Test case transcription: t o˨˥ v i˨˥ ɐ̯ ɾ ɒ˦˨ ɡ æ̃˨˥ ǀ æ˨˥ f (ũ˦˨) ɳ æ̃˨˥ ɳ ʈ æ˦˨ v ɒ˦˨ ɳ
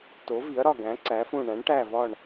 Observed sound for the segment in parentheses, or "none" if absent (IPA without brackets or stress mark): ũ˦˨